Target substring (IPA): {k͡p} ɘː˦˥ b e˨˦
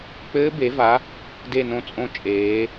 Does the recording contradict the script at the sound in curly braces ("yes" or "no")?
no